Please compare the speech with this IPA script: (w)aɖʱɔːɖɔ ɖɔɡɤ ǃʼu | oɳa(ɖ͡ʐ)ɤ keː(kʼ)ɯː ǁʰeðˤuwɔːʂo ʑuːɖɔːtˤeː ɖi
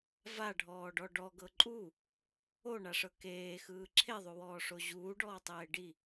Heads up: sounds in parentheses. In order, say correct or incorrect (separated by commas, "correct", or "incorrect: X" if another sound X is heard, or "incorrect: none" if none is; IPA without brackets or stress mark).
incorrect: v, incorrect: ʂ, incorrect: x